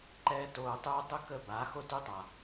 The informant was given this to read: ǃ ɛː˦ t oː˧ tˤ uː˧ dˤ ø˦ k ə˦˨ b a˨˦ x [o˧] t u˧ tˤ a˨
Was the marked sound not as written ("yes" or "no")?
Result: yes